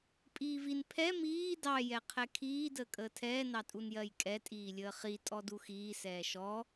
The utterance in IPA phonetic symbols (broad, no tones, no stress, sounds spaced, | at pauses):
pʼ iː v i n pʰ ɛ m iː d ɑ j ɛ qʰ ɛ kʰ iː d əː kʼ əː tʰ ɛː n ɑ tʼ u n j ɜ j kʼ ɛ tʼ iː lʲ əː χ i tʼ ɔ d u x iː s ɛː ʃ ɔ